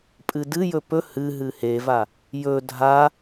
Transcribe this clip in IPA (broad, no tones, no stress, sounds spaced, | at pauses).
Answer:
pʼ ɨ d ɨ j ɵ p ɵ h ɨ ɦ ɨ h e v a | j ɵ dʱ a